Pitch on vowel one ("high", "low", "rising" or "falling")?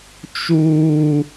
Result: high